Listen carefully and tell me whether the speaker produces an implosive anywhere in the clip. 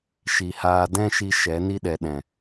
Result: yes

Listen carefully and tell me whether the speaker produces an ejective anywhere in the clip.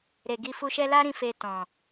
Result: no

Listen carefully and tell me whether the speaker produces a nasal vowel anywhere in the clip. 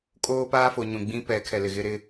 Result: yes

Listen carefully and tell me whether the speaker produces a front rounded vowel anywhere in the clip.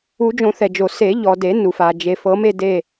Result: no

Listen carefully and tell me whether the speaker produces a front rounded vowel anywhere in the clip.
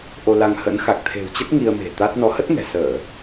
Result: no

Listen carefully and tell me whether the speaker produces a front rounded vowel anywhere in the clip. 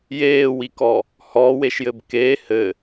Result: no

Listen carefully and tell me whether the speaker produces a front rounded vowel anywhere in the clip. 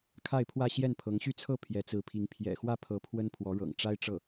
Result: yes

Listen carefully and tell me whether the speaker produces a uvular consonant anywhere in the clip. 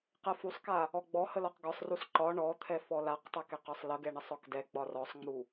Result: yes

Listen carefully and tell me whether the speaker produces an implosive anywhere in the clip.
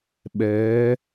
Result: yes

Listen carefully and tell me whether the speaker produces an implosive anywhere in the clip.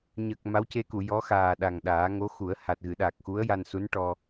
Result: yes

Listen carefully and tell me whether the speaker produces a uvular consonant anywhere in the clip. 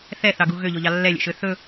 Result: no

